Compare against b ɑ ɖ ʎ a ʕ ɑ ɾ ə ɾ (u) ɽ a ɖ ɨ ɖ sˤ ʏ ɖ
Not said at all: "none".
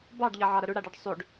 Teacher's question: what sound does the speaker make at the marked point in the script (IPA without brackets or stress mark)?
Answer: ʏ